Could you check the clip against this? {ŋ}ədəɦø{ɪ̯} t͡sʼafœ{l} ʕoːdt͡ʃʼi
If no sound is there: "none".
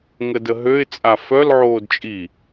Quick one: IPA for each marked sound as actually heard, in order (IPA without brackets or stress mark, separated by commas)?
ŋ, ɪ̯, l